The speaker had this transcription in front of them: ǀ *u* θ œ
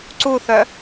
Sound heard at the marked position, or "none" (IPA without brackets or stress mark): u